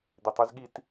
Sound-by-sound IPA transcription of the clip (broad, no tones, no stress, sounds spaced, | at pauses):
d̪ e tˤ y z ɠ i t